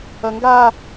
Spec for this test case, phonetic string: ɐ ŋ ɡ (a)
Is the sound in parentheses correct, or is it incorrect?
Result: correct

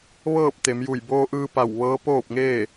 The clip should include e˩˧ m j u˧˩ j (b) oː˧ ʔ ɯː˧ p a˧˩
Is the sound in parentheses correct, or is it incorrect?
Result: correct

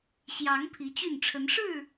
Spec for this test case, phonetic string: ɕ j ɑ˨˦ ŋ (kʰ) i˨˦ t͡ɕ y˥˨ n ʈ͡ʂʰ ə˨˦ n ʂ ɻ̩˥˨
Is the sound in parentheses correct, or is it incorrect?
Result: incorrect: pʰ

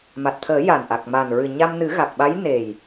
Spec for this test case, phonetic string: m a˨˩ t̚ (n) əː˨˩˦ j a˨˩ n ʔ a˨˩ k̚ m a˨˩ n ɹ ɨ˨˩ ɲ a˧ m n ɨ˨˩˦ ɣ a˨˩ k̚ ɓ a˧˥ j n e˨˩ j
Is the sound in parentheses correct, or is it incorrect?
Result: incorrect: t̪ʰ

